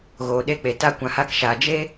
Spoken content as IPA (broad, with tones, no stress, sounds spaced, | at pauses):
ɣ oː˨ ɗ e˧ k͡p e˨ t a˧ kʷ ã˨ h a˧ k ʃ aː˨ d͡ʒ e˦